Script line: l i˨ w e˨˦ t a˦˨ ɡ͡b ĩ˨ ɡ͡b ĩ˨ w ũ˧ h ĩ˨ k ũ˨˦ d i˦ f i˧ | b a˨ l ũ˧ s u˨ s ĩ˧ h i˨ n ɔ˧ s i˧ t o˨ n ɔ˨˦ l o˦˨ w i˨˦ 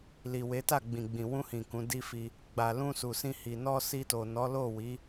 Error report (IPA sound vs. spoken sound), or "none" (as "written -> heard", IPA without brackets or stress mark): b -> ɡ͡b